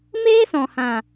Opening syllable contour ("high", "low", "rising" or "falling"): high